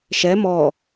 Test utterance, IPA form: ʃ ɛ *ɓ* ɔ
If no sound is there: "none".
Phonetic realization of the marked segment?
m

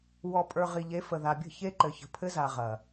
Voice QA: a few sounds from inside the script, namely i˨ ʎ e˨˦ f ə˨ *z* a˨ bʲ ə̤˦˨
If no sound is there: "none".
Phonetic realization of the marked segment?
ð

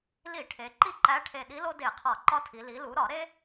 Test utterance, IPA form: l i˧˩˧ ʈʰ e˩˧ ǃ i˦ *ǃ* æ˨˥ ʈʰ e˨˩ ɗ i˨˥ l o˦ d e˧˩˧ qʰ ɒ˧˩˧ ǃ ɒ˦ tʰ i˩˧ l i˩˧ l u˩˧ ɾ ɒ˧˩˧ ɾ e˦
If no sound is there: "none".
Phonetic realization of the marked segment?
ǃ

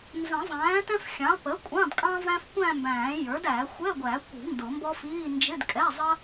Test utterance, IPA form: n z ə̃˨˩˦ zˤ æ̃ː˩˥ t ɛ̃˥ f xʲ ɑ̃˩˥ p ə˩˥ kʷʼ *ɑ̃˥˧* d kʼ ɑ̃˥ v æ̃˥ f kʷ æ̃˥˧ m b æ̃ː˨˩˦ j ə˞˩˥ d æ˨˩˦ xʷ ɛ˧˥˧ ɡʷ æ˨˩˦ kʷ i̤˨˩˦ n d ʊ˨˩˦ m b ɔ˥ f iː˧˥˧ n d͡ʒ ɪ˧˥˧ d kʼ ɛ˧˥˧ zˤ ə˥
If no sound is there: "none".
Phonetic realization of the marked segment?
ɑ̃˧˥˧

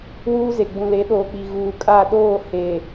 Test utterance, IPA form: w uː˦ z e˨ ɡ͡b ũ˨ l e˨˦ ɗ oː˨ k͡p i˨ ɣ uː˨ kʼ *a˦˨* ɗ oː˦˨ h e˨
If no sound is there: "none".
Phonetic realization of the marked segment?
a˦˨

